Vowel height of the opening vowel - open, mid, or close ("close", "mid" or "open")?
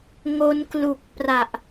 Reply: mid